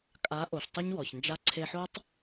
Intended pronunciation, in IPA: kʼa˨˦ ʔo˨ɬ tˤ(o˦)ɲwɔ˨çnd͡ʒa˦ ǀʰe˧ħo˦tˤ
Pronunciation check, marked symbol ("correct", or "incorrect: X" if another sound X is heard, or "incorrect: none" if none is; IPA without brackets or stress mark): correct